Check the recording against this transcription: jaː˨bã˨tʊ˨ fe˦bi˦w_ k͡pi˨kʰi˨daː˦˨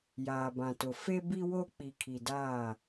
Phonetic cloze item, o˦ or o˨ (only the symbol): o˦